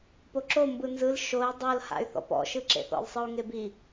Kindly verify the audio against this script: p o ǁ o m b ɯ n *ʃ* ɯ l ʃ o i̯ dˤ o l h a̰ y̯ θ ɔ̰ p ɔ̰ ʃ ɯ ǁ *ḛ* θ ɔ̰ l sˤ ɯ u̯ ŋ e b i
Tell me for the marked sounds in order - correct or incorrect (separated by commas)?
incorrect, correct